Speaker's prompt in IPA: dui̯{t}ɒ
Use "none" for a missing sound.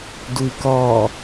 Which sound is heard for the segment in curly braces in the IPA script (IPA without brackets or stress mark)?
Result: k